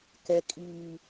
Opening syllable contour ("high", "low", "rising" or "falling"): low